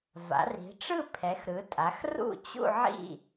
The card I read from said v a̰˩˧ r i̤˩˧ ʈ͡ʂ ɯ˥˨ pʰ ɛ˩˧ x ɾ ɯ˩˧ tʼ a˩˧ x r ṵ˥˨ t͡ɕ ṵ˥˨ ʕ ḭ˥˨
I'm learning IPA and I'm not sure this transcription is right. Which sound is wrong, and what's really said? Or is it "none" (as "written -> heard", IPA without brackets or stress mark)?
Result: none